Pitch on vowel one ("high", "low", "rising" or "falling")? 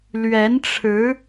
rising